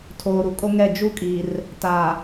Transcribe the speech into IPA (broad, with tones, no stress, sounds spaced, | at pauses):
tʰ oː˨ ɾ u˨ kʼ o˦ ŋ ɛ˦˨ d͡ʒ u˦ kʼ i˨ r | t a˨